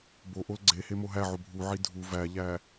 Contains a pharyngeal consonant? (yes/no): yes